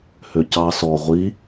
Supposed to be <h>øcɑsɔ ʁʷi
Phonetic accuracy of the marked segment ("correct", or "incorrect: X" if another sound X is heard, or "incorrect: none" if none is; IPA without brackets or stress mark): correct